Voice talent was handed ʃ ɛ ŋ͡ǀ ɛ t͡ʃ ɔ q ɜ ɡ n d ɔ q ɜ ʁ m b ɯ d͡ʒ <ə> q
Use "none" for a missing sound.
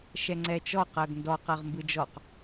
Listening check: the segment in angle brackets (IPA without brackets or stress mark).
ɔ